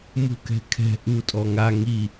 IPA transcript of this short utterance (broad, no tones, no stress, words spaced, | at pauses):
mṳkɛ̤kʰɛ̤ ʔu tʼɔŋa ŋi